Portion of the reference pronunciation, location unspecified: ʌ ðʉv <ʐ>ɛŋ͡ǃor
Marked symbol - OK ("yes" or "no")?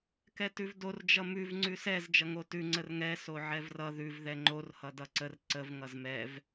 no